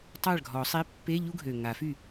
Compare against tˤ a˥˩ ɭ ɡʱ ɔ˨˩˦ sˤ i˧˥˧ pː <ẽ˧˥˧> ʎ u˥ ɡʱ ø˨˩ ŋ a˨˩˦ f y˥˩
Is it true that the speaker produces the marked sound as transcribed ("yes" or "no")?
no